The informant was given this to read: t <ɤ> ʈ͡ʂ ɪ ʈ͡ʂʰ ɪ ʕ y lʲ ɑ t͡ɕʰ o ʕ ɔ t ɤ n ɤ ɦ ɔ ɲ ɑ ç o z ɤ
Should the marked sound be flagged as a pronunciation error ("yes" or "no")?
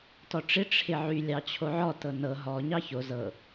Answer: yes